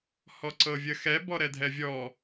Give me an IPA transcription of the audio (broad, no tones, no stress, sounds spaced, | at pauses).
h ɔ ǀ ɤ vʲ ə x ɛ b ɔ ɾ ɛ dʱ ɛ vʲ ɔ